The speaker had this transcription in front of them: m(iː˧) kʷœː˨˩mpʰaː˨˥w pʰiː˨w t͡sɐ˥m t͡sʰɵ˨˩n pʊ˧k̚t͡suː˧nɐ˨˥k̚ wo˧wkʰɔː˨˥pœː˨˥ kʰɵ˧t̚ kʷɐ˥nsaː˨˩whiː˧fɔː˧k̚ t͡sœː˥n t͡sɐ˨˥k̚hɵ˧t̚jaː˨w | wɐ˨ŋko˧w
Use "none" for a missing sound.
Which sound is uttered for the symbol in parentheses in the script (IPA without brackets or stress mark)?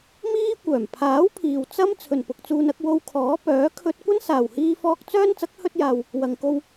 iː˥